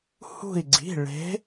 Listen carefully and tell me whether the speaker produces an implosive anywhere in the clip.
no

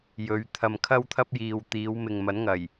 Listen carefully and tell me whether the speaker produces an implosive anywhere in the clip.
no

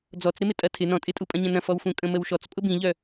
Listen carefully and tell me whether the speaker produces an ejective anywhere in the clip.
yes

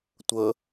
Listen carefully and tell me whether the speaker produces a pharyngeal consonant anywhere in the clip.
no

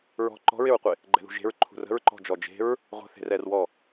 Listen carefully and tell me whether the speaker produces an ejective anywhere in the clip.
no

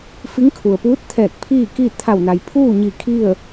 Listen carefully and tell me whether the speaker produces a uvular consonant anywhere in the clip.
no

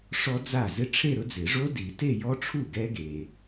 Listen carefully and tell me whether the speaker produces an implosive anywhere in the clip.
no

